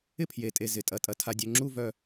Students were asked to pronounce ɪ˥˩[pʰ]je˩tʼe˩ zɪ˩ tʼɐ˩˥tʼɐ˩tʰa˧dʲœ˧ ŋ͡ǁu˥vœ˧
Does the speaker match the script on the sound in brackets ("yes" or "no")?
yes